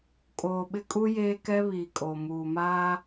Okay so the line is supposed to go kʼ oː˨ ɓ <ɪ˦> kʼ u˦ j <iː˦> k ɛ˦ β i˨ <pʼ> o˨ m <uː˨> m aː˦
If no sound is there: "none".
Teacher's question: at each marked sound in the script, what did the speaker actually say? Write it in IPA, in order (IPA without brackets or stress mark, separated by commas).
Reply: ɪ˦, eː˦, kʼ, uː˨